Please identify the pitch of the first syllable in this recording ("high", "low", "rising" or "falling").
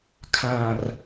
low